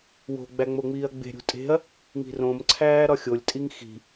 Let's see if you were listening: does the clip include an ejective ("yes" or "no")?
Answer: yes